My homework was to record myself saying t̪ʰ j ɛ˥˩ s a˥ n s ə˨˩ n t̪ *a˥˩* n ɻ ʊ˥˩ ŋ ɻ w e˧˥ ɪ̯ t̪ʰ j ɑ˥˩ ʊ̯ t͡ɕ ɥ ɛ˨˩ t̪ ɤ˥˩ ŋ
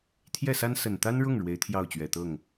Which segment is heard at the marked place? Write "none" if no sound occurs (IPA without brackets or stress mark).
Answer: a˥